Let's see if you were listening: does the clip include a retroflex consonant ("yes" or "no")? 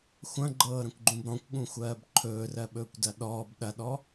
no